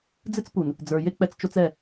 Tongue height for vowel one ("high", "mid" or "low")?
high